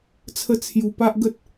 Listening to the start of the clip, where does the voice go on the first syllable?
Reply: high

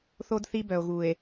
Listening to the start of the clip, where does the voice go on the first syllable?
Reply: high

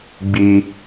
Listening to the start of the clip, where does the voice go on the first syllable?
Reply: high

